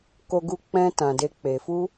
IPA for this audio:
k o˧ ɡ u˧ k͡p ɛ̃˧ t ã˨ d e˧ k͡p e˨ f u˧

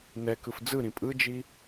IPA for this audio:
n ɛ k ɯ f d͡z ɯ ɾ ĩ pʼ ɯ d͡ʒ i

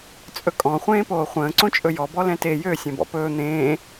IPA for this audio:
t͡sʼ ɵ kʼ ɔ̃ χʷ ẽː p oː χʷ ə̃ː ǀ õ t͡ʃʼ ɵ j ɔ b ɔ l ɛ̃ t e j ø sʲ ɛ̃ b ɔ̰ p ɵː n̪ ẽː

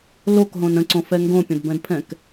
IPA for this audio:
l o k ɦ õ n ə̃ ǀ õ f ɛ ŋ ɡ õ pʲ ə̃ d b ɛ̃ d pʰ ɛ̃ k

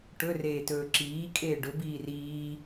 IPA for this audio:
ʈ ɵ r eː t ɵː ǁ iː kʼ eː ɖ ɵ b iː r iː

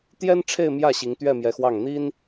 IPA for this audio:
t̪ j ɛ˥ n ʈ͡ʂʰ e˥˧ ɪ̯ m j ä˥˩ ɕ i˧˥ ŋ t̪ ɥ ɛ˥˩ m j ɛ˧˥ x w ɑ˥˩ ŋ n̪ i˥ n

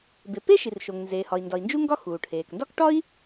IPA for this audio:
b e˩ p e˥ ʃ i˩ r ʃ o˩ ŋ n z eː˩ h ɒ˩ i̯ n d ɒ˩ i̯ n d͡ʒ u˥ ŋ ɡ ɒ˥ x uː˩ ʈʰ eː˩ k n d ɒ˥ k ʈ ɒ˥ i̯

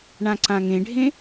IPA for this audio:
ɳ ã ǀ ã ŋ ẽ ɖʱ ẽ

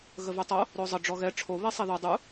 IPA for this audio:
ɣ ə v y tˤ o | ɾ o zˤ ə ɖ͡ʐ ɔ ɣ ɛ ʈ͡ʂʰ o β e sˤ e ð o dˤ u

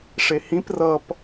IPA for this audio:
ʂ e h ĩ p r ʌ p

